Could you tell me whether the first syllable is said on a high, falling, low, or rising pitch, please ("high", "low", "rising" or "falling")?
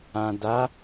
low